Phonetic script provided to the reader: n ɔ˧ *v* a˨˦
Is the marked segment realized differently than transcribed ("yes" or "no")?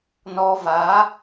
no